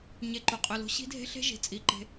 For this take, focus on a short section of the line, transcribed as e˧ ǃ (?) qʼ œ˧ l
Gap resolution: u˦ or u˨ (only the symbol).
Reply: u˨